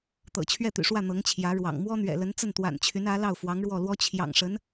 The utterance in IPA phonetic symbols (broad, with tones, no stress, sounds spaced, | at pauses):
t̪ ɤ̰˨˩ t͡ɕʰ ɥ ɛ˥˩ t̪ y̰˨˩ ʂ w ä˥˩ n̪ ɤ˧˥ ŋ t͡ɕʰ j ä˧˥ ɻ w ɑ̰˨˩ ŋ m w ɔ˥ n̪ ɥ ɛ̰˨˩ l ə˧˥ n t͡s ə˥˩ n t̪ w a̰˨˩ n t͡ɕʰ y˧˥ n ä˧˥ l ɑ˥˩ ʊ̯ f w ɑ˧˥ ŋ ɻ w ɔ˥˩ l w ɔ˥ t͡ɕʰ j ɑ̰˨˩ ŋ ʂ ə˧˥ n